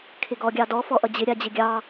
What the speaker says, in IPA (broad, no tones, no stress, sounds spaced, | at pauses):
kʰ ɪ ɡ ɔ ɡʲ ɑ d ɔ f ɔ ʔ ʌ d͡ʑ ɪ ɾʲ a d͡ʑ ɪ ɡʲ ɑ